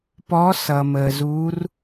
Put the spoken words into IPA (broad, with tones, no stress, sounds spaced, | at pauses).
p ɔ˧˥ s ʌ˨ m əː˨ z uː˧˥ r